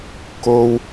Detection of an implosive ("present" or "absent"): absent